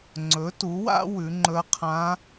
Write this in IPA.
ŋ͡ǀɵ˩˧tu˩˧wa̰˧ wʉ˩˧ŋ͡ǃɵ˧˥ɐ̯ qʰã˧˥

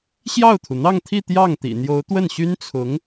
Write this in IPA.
ɕjɑ˥˩ʊ̯t̪ʰu˩n̪ɑ˥˧ŋt̪ʰi˥˧ t̪jɑ˥˩ŋt̪ḭ˨˩ n̪jo˧˥ʊ̯t̪wə˥˩nɕy˥nt͡sʰʊ˧˥ŋ

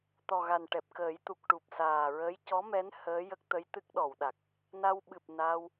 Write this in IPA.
t̪ɔ˨˩ ɣa˨˩n ʈɛ˨˩p̚kəː˨˩˦jt̪u˨˩k̚ ʈu˨˩p̚saː˨˩ɹəː˧˥j cɔ˧˥mɛ˧˥n həː˧˥jə˦˥k̚t̪ə˧˥jt̪ɨ˦˥k̚ ɗɔ˨˩˨wɗa˨˩k̚ | na˧wɓɨ˨˩p̚ na˧w

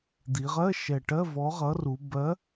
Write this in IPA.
d̪i˩˧ʁɜ˧˥˧ʃɛ˨˩ ʈɜ˧˥˧vɔ˨˥ʁʌ˨˥ru˩˧ bɜ˨˥

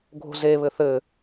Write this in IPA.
ɡʱo̤zeβɘ θɘ

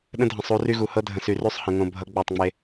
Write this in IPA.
ɗə̃˦dʱə̃˨sˤu˨˦ ry˦ɣu˨ hɤ˦dʱə̃˨sy˨ ry˦sˤ hə̃˨ ŋõ˨bʱʌ˨˦ ɡ͡bɛ˦˨tˤŋ͡me˦

